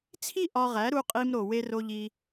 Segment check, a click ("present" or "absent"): absent